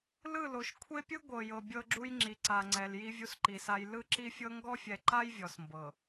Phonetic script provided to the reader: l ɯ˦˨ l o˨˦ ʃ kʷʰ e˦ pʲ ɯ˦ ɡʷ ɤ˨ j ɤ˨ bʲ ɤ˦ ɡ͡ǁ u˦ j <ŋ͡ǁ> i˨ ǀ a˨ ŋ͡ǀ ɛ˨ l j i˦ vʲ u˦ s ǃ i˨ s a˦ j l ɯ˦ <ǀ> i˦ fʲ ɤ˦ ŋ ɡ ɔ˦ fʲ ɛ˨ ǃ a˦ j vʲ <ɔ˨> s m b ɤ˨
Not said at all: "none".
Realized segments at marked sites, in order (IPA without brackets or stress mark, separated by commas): ŋ͡ǁ, ǁ, ɔ˨